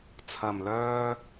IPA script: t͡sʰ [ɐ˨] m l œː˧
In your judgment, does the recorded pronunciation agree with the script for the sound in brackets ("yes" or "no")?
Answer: yes